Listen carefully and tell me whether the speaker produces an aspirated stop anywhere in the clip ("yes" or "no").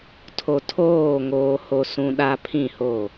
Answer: yes